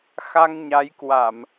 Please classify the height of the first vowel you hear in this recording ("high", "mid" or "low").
low